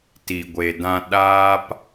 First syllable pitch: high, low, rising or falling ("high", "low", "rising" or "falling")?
low